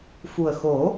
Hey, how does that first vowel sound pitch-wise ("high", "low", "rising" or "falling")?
low